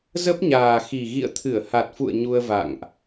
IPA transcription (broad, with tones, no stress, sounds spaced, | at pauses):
z ə˦˥ p̚ ɲ aː˨˩ x i˨˩ ɣ ḭ˧˨ ə̯ t̪ʰ ɨ˧˩ ə̯ h a˨˩ t̚ f ṵ˧˨ ə̯ ɲ u˧ ə̯ v a̰˧˨ ŋ ʔ